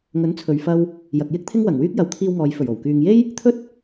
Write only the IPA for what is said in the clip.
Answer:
ŋɵ˨˥nt͡sʰɵ˨ɥfɐ˧w | jɐ˨k̚jɪ˥k̚ t̪ʰɪ˥ŋwɐ˨˩ŋwyː˥k̚ jɐ˨˥wt̪ʰiː˧wŋɔː˨j fɵ˨˩ɥo˨˩wkyː˨ŋje˥j | t̪ʰɵ˥t̚

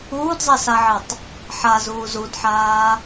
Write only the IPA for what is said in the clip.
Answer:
uːdzˤesaʕetˤ | ħazuːz udħaː

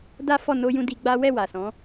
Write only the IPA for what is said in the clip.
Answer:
da˦fɔ˦˨no˧jũ˧ di˧ɡ͡ba˦ wɛ˦˨ wa˨sɔ̃˨˦

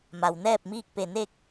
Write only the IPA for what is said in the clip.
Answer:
ma˩wnɛː˥˨p̚ miː˥˨k̚pe˧˩ne˥˨k̚

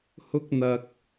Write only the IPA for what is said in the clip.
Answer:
hʊ˥k̚n̪ɐ˧k̚

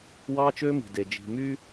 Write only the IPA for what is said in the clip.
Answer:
wɑː˦t͡ʃøː˦mi̤˨de˨ d͡ʒi̤˨my˦

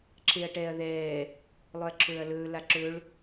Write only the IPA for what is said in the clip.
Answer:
ǁʰeɐ̯ʈɛːɐ̯ðɛː | lˠɵɐ̯ǁʰɵːɐ̯lɵː laǁɵɭ

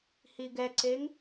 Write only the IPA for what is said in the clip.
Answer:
hiɡɛǀeŋ

